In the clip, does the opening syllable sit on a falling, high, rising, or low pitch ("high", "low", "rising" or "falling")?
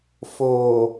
low